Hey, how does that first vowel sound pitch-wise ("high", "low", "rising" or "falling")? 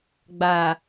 low